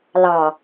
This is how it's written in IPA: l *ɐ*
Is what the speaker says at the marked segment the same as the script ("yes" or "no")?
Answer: no